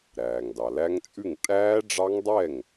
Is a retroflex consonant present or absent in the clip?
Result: present